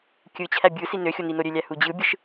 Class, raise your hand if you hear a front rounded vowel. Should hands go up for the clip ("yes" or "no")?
yes